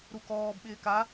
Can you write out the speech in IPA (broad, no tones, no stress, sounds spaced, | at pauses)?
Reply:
ɾ u k ɔː b ɓ ɪː k a